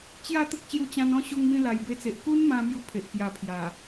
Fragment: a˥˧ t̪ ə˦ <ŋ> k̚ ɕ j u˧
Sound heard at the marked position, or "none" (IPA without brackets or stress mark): none